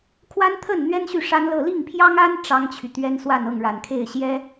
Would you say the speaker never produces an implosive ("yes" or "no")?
yes